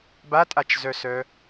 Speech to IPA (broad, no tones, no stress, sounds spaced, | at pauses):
b a tʼ a t͡ʃ z œ s œ